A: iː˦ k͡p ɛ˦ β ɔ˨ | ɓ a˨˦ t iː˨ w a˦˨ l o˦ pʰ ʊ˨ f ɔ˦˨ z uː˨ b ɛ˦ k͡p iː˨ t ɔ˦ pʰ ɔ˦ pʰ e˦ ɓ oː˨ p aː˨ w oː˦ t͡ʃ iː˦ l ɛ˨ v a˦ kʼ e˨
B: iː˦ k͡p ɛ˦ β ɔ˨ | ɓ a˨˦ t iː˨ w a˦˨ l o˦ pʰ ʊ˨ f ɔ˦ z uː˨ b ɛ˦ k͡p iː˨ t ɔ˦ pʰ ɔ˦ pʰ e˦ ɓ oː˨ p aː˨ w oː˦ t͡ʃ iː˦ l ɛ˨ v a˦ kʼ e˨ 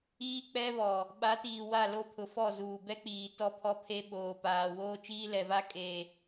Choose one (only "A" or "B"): A